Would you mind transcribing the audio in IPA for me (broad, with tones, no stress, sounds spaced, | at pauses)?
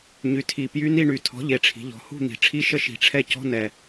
ɲ y˩˧ tʰ i˨˩ p j y˧˥ n i˥˩ ɳ y˨˩ tʰ ɔ̤˩˥ ʎ e˩˧ ʈ͡ʂʰ i̤˩˧ ʎ ɔ̤˩˧ h ṳ˥˩ n̪ i̤˩˧ ʈ͡ʂʰ i˧˥˧ ʃ ə˧˥ ʃ i̤˨˩ ʈ͡ʂʰ ɛ˥˩ c ɔ̤˧˥˧ n ɛ˨˩